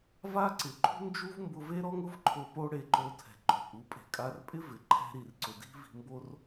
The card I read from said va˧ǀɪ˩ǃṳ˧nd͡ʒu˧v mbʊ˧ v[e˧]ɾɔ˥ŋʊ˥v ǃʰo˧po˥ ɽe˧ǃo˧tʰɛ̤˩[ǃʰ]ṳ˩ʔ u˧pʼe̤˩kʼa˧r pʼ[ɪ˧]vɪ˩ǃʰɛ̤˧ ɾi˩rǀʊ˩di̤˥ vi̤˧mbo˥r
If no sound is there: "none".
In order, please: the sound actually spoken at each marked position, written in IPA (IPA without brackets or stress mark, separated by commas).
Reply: e˥, ǃʰ, ɪ˥